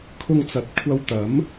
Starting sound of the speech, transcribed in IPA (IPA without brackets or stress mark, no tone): kʰ